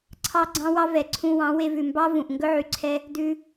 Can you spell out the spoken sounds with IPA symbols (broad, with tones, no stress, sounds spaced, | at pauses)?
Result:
ǀʰ ɑ˦ ɡ͡ǀ ɑ̃˦ w ɑ˦ v ɛ˨ ǀʰ ũ˧ w ɑ̃˨˦ w e˧ v ʉ˨ m b ɑ˦ v ũ˨ ʔ ŋ ɡ ɵ˦ ʕ y˨ ǀʰ ɛ˦ | d ʉ˧